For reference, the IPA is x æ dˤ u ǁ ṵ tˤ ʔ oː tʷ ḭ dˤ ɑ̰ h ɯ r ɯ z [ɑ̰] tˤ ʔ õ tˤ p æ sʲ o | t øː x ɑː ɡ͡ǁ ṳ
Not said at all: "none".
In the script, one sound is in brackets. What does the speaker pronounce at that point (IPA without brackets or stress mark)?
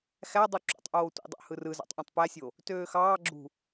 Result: ɑ̰